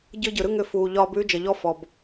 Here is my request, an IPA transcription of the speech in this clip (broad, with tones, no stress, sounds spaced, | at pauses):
ɟ ɯ˦ ɟ ɯ˨ ɾ ɯ˦ ŋ ʏ˦ f uː˨ ʎ ɒː˦ b ʉː˦ d͡ʒ ə˨ ʎ ɔ˦ f ɔ˨ b